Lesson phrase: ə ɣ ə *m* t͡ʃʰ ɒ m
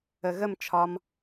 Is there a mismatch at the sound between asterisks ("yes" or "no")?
no